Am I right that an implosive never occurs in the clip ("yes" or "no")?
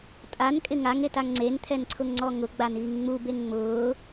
yes